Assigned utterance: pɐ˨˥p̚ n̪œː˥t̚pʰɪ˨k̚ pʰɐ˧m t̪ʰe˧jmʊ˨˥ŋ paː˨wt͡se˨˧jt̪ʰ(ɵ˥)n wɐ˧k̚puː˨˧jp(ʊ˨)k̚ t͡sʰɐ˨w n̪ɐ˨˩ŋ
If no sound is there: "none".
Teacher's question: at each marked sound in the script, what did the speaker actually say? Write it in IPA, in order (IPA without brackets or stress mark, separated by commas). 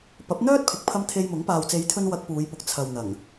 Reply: ɵ˧, ʊ˨